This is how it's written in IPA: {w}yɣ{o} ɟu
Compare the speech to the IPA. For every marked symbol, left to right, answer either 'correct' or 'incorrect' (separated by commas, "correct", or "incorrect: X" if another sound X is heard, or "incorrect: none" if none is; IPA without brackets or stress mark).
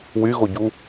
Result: correct, correct